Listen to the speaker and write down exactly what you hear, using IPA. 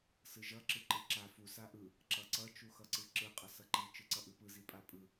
s ɯ ʒ ʌ ǁ ɯ ǃ ɯ ǁ a f u s a ʔ ɯ | ǁ ʌ ǀ ʌ t͡ʃ u x ʌ ǀ ɯ ǁ ɯ qʼ ʌ s ʌ ǃ i t͡ʃ ɯ ǀ ʌ ʔ ɯ p ɯ z i pʼ a pʼ ɯ

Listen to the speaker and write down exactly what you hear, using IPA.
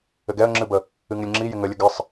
ɘ ɡ ɛ ə̯ ŋ͡ǁ ɨ b ə | ɨ ŋ ɪ lʲ ŋ͡ǁ i j ɪ ŋ ə lʲ ə ɡ ɪ sˤ

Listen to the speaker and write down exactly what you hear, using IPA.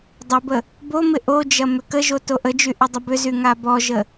dˤ ə b ə | b o m ɪ ʔ o d͡ʒ ɐ m ʏ k ə ʒ o t o ʔ ə d͡ʒ y ʔ ɪ dˤ ə b ʏ z y ŋ a b ɔ ʒ ə

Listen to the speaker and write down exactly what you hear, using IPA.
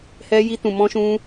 h ɛ˧ j i˧ t ũ˨ m ɔ̃˧ ʃ ũ˧

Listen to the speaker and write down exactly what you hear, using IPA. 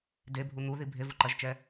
d e bʱ u n̪ u ð i bʱ e v u ǃ ɐ ʒ t͡ʃ ɛ

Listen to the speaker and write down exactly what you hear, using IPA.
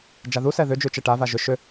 d͡ʒ a ð u s ɛ ð ʏ d͡ʒ ʉ t͡ʃ ɛ ʈ a v a ʒ ʏ ʃ ʏ

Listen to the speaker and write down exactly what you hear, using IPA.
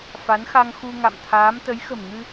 f a˨˦ n x a˧ ŋ x u˧ ŋ a̰˧˨ m t̪ʰ aː˨˦ m t̪ ə˨˦ j x ə̤˨˩ m ŋ ɨ˧

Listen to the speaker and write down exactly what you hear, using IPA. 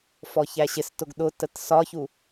f ɔ ç æ ɕ ɪ s t ʊ ɡ ɗ ʊ t ə t s ɒ ç u

